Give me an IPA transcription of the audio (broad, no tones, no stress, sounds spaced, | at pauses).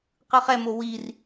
q ɯ χ ɛ m o w i r